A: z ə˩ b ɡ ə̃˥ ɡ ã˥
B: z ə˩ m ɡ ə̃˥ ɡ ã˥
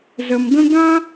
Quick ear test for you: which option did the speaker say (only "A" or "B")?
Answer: B